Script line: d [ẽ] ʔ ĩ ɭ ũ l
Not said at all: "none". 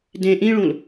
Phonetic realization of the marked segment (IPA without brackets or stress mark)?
ẽ